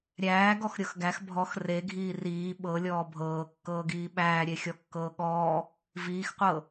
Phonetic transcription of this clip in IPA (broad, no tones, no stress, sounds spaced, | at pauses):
ɾʲ æː ɡ ɔ x ɾʲ ɤ x ɡ æ x bʱ ɔ x r e ɡʱ iː r iː ɓ ɤ lʲ ɔː bʱ ɤː kː ɤː ɡ iː ɓ æː ɾʲ e xʲ ɔ kː ɤː ɠ ɔː | v iː x qʷ ɤ